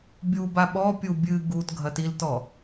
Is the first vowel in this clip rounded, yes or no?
yes